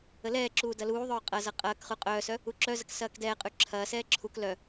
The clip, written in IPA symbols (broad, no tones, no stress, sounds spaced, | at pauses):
ə l ɛː ǁ uː d ɐ l uː ðˤ œː qʼ ɐ z ɐ qʼ ɐː k χ ʉ qʼ œː s œ | u ǁ œ z ə k s ɐː k d ɛː qʼ ʉ ǁʰ ɐː s ɛː ǁʰ u k l œ